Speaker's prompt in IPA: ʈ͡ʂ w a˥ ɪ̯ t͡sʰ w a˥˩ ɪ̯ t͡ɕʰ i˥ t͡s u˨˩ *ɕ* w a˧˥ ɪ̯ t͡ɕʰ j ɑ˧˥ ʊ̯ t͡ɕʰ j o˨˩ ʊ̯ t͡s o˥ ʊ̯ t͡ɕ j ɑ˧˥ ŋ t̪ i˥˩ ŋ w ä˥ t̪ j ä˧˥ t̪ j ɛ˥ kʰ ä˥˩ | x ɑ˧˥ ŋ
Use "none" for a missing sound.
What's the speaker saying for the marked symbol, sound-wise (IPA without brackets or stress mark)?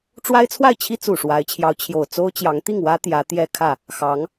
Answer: ʂ